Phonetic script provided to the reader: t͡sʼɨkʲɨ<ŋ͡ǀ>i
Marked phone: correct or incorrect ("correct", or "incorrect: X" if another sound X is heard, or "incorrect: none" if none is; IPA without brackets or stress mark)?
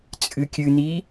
incorrect: n̪